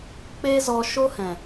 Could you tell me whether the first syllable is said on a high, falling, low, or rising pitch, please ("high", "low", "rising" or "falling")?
high